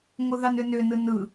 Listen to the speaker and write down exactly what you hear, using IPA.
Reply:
ŋʷɯðɑnʏnʏ nɯnɯ

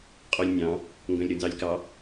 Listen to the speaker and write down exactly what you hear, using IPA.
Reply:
qʼolʲnʲɑ̃ | ŋɡœ̃lʲɾʉnzɑlʲkɑ

